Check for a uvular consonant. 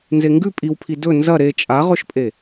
present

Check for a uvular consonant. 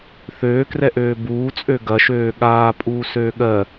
absent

